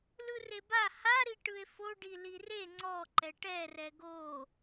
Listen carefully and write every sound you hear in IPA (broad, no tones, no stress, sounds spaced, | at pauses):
l ɯ r e b a h a ɾ i ʈ ɯ e̯ f o ɖ i l i r e ŋ͡ǀ ɔ ǃ ɛ ʈ ɛ r ɛ ɡ o